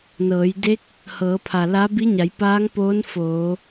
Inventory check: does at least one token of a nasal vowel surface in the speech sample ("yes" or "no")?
no